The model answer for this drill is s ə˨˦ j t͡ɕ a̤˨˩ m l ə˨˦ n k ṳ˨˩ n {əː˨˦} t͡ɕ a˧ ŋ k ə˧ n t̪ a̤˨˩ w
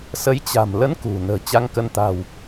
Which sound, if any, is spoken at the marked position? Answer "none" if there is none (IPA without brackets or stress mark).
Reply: ə̤ː˨˩